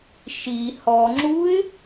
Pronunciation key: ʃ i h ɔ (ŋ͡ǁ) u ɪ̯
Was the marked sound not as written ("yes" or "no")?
no